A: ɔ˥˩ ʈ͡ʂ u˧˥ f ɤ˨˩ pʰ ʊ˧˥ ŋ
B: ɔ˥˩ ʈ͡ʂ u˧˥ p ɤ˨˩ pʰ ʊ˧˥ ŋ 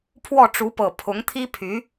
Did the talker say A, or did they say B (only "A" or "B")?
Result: B